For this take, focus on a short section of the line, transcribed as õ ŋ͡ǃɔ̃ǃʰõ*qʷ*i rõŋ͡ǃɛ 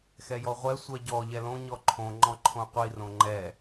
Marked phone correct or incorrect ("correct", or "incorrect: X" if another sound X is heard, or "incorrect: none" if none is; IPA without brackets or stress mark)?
correct